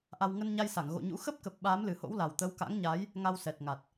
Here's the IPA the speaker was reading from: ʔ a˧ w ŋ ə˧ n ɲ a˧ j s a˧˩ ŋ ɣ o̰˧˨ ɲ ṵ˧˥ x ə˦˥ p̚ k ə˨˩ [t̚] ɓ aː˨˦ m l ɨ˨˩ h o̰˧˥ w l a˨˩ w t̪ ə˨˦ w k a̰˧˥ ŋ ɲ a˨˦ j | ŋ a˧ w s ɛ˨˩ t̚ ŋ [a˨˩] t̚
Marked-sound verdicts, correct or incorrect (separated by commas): incorrect, correct